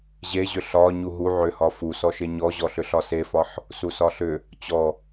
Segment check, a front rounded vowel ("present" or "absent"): present